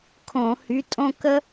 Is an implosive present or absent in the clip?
absent